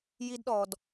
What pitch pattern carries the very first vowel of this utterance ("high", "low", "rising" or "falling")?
high